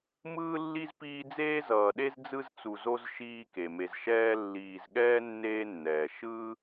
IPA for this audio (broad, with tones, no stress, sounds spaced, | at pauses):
m ɯː˥ lː i˥ z p iː˦ d͡z eː˥ z ʌː˨ ɗ e˥ z d͡z ɯ˦ z t͡s u˨ z o˦ z ʃ iː˦ k e˩ m e˨ z ʃ ɛː˥ lː iː˨ z ɠ ɛː˥ nː eː˦ nː ɛː˩ ʃ ɯː˥